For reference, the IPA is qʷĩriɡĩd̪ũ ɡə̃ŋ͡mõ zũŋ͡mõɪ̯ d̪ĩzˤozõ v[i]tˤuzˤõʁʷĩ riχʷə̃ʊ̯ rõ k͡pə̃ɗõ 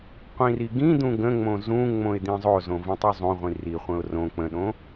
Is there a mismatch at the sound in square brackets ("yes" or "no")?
yes